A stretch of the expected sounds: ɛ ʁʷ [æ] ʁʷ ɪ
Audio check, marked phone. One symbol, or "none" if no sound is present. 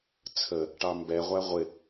æ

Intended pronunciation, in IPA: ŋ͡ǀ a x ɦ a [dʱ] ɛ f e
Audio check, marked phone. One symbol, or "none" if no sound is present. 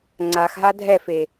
dʱ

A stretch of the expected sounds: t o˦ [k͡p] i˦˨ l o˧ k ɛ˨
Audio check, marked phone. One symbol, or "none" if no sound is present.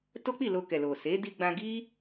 k͡p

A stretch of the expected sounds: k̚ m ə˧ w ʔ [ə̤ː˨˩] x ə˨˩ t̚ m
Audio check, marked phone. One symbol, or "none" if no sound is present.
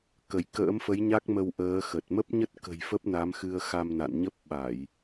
əː˨˦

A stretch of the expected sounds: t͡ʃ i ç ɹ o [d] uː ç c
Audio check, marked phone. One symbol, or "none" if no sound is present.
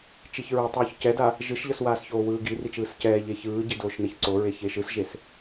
tˤ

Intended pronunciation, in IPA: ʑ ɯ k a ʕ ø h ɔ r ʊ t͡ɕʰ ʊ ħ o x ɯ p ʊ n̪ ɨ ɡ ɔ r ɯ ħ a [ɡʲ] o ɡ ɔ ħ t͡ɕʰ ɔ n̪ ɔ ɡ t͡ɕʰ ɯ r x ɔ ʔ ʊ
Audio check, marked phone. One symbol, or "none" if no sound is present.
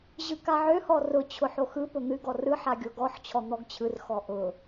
ɡʲ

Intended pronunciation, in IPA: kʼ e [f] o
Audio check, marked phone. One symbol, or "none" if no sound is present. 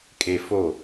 f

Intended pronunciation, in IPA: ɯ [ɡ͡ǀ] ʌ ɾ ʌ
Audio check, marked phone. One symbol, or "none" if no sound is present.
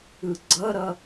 ɡ͡ǀ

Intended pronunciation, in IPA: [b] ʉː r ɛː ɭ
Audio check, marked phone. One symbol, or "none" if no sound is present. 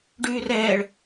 ɖ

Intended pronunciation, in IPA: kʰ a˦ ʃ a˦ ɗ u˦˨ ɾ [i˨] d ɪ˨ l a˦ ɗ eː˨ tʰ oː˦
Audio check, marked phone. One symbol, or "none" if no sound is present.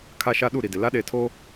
i˨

